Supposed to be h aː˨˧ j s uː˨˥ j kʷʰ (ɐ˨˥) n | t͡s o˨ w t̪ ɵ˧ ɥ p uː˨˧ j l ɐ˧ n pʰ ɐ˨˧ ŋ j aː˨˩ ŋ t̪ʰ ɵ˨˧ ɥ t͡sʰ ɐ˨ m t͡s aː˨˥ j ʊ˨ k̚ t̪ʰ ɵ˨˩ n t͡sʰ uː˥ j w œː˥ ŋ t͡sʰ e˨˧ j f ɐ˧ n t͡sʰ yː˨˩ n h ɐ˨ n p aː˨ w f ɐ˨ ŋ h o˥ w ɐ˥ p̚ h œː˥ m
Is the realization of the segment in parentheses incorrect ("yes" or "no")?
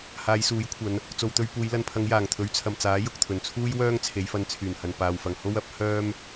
yes